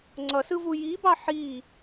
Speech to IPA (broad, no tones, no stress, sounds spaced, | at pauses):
ŋ͡ǀ ʌ s ɯ v u j i b ɑ ħ i